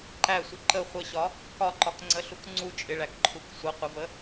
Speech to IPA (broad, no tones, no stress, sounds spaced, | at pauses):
ǃ æ sʷ ɪ ǃ ə χʷ ə ɕ ɒ | k ɒ ǃ ɒ k ŋ͡ǀ ə ɬ u k ŋ͡ǀ u t͡ʃʼ ɪ ɭ æ k ǃʰ u k sʷ ʌ qʷ ə v ə